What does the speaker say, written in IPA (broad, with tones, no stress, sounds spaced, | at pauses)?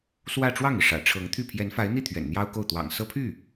s w ä˥˧ ʈ͡ʂ w ɑ˥˩ ŋ i˩ ʂ ä̰˨˩ ʈ͡ʂʰ ɤ˧˥ ŋ t̪ʰ y˥˩ pʰ j ɛ˧˥ n f a˧˥ ɪ̯ n̪ i˥˩ t̪ʰ ɥ ɛ̰˨˩ n n̪ j ɑ˥ ʊ̯ k o˥˩ ʊ̯ t̪ w ɑ̰˨˩ ŋ s ɤ˥ pʰ y˥˩